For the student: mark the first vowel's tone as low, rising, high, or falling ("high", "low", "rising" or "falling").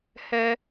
high